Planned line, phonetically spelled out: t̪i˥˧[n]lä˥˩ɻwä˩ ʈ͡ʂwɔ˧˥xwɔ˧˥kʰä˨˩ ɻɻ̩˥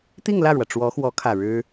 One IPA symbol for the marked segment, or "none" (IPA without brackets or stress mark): ŋ